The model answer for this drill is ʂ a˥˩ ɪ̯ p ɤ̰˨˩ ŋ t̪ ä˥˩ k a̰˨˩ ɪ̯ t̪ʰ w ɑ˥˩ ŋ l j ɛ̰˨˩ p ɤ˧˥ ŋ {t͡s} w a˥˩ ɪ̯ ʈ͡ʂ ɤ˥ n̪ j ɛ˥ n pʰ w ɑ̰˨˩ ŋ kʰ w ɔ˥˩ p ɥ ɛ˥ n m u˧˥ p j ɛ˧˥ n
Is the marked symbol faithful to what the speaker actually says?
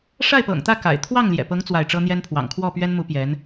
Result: yes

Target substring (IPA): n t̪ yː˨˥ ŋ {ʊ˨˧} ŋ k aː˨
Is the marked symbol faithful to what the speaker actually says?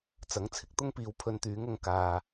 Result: yes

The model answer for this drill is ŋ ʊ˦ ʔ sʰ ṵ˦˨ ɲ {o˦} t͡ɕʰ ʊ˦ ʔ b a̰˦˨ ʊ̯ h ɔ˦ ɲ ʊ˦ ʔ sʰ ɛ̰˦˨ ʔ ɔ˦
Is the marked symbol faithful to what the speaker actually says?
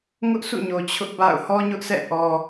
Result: no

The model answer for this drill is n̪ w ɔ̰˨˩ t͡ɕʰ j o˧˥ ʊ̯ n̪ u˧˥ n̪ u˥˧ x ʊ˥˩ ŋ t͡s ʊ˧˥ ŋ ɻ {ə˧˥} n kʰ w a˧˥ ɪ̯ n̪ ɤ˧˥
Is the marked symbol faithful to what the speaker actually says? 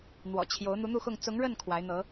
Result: no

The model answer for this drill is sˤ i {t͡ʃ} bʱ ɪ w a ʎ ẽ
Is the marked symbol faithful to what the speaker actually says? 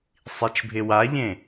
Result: yes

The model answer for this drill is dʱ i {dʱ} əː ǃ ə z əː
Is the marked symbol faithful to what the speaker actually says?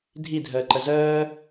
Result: yes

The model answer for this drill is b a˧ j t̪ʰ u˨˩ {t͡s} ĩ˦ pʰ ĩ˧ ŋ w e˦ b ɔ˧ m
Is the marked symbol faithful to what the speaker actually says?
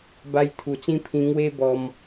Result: yes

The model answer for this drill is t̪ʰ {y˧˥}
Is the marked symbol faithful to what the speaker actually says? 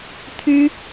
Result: no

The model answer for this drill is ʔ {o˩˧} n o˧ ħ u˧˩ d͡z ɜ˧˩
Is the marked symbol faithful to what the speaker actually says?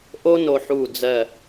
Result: no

